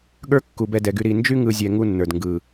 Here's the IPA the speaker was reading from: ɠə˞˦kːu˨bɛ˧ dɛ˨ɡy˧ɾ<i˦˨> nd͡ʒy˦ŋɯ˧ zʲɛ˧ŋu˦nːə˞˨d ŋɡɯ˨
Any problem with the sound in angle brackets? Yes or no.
no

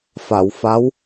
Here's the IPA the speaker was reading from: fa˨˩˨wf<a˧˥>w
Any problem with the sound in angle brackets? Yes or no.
no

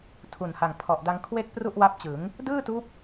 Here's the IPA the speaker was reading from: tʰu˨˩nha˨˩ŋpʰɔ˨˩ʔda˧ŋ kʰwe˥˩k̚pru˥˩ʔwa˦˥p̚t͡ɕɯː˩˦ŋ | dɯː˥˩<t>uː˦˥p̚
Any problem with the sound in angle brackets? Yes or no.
no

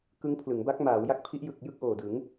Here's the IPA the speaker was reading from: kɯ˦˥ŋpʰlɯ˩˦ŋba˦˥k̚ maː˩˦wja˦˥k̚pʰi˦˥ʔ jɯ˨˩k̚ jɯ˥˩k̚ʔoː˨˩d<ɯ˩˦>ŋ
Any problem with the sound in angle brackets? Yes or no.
no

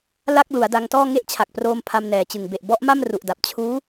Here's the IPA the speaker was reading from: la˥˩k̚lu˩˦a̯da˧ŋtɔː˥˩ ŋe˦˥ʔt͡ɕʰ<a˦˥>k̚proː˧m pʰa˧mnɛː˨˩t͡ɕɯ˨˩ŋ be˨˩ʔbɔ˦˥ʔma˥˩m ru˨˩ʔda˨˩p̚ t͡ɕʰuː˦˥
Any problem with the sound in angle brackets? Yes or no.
yes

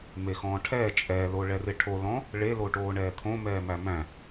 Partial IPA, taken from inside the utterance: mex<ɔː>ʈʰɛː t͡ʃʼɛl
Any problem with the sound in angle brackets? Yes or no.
yes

